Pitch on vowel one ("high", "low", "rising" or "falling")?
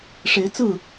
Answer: rising